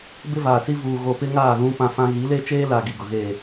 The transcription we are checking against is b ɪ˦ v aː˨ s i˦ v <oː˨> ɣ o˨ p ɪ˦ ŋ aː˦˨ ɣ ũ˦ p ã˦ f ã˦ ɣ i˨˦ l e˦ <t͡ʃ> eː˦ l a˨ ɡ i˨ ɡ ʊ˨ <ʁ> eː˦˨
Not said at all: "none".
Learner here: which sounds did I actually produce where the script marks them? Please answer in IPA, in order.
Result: uː˨, t͡ʃ, ɣ

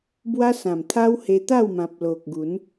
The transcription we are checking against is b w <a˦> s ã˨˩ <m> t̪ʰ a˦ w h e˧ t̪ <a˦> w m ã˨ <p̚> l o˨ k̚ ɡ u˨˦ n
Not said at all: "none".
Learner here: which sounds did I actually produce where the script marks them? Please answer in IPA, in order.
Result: a˦, m, a˥˧, p̚

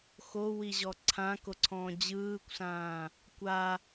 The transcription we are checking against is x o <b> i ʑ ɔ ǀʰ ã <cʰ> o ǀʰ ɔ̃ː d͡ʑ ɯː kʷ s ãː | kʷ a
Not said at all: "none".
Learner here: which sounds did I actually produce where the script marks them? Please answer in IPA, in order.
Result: w, k

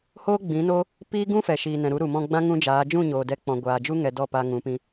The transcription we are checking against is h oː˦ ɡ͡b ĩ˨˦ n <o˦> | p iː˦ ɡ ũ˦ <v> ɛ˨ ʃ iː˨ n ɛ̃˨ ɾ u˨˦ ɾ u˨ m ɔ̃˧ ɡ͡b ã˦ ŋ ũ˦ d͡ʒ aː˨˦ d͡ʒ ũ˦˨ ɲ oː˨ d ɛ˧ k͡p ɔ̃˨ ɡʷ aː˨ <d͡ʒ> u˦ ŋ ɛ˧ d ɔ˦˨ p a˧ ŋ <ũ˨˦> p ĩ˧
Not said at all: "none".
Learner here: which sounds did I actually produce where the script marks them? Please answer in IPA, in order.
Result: o˦, f, d͡ʒ, ũ˨˦

